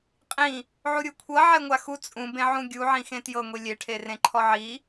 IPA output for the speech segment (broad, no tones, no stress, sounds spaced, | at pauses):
qʼ ĩ | ʕ u ɾʲ u kʷʰ ɤ ʕ ɛ ŋʷ a x u t͡sʼ ũ b ẽ ʕ ũ ɡʲ u ʕ ĩ x ẽ t j ɤ ŋʷ i lʲ e ʈʰ e r ẽ ǃʰ ɔ ʕ i